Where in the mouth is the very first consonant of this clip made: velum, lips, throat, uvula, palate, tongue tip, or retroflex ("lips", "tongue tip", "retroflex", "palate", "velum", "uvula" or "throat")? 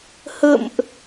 throat